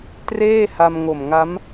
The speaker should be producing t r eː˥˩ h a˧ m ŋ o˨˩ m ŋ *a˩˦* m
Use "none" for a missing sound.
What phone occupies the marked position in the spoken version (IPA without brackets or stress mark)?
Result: a˦˥